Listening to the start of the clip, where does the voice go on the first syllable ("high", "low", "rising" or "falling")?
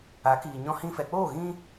rising